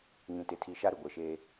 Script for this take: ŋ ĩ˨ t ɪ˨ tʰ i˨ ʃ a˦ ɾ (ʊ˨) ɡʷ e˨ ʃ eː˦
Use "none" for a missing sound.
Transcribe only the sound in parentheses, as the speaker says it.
ʊ˨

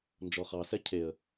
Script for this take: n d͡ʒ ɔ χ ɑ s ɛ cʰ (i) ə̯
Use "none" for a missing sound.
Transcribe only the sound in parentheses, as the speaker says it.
e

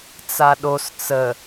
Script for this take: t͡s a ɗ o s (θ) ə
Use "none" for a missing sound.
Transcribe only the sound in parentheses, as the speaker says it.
t͡s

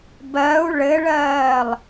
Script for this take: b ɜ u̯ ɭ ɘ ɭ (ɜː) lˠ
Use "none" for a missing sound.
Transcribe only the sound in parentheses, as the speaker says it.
ɜː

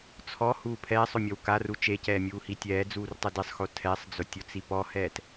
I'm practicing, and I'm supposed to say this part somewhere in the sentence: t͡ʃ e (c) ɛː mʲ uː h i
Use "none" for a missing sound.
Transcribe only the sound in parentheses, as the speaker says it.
c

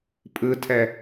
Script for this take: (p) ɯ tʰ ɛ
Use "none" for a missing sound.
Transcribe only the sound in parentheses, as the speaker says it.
pʼ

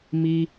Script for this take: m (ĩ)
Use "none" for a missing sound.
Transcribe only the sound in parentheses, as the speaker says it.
i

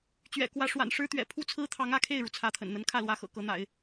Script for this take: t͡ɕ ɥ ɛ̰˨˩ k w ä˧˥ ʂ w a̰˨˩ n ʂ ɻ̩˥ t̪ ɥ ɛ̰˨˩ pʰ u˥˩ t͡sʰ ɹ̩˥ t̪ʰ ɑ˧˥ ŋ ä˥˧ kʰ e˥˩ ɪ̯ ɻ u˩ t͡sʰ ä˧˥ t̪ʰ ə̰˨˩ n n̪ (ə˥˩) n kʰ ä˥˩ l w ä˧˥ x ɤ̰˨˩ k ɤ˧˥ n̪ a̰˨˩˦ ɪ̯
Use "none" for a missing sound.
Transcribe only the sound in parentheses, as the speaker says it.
ə˧˥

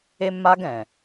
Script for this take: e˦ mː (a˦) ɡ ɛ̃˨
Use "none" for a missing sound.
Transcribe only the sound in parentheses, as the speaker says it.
a˦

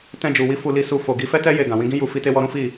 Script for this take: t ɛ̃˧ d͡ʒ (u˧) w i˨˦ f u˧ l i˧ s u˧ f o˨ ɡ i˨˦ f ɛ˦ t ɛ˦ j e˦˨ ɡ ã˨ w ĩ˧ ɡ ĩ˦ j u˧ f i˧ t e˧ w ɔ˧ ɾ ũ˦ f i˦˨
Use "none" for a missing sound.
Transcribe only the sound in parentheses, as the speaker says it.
u˨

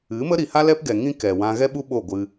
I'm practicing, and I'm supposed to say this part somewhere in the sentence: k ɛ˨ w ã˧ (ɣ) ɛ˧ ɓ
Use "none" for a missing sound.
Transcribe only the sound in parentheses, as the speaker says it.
ɣ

